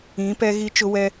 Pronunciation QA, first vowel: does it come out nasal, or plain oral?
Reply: nasal